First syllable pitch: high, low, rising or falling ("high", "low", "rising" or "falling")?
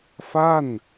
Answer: falling